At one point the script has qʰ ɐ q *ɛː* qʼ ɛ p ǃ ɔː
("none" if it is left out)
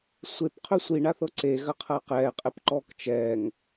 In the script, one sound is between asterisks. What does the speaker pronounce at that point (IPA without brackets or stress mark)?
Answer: ɛː